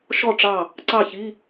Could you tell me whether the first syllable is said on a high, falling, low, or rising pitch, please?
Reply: falling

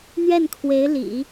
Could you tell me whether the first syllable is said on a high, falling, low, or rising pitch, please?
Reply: falling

